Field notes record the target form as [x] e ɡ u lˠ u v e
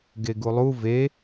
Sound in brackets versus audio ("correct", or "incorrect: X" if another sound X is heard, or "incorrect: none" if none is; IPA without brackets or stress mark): incorrect: ɡ